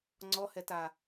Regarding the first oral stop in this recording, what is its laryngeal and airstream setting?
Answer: click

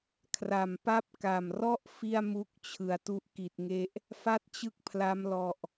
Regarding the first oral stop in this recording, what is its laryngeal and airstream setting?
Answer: aspirated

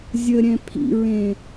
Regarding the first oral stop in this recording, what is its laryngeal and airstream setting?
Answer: aspirated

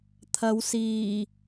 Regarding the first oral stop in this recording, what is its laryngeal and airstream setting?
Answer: aspirated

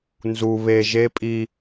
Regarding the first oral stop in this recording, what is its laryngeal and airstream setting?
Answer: ejective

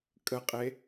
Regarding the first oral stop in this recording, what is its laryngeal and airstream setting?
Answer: ejective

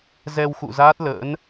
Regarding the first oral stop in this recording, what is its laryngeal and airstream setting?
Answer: plain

